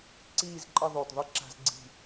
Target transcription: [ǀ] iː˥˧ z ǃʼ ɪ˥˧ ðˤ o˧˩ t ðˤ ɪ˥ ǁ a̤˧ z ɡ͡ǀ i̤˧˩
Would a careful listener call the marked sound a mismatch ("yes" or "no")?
no